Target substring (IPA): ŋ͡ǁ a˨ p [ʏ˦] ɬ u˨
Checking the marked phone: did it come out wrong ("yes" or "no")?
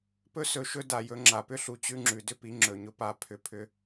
no